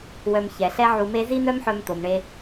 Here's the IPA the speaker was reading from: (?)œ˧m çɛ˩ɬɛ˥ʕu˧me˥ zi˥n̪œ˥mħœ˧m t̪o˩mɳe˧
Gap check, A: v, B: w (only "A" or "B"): B